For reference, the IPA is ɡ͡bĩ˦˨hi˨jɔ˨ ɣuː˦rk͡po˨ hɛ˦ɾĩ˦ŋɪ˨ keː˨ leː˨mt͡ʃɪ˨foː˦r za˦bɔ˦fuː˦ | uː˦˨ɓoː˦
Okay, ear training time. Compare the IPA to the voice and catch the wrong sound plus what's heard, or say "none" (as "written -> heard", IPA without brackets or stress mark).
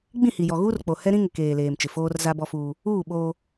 none